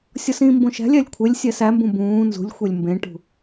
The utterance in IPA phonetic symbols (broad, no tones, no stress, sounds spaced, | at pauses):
sʲ ɒ s ĩ m b õ ʃ æ̤ lʲ æ lʲ kʷʰ e lʲ sʲ æ s æ m b ũ b ũː n z ṳ lʲ xʷ e lʲ m b ẽ ʈ ṳ